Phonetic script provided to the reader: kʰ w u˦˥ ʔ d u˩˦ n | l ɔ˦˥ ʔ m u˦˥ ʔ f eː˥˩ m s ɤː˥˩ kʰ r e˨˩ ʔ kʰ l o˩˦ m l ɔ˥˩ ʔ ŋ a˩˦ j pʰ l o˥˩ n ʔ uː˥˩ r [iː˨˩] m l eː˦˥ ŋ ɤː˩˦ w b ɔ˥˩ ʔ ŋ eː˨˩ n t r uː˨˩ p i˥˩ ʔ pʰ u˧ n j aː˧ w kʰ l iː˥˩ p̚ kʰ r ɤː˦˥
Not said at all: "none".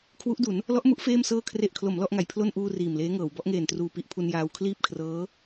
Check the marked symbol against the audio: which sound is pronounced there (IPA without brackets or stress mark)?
iː˨˩